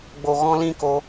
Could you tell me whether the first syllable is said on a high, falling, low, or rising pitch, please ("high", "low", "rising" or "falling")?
low